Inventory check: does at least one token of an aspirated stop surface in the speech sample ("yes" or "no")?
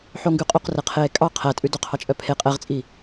yes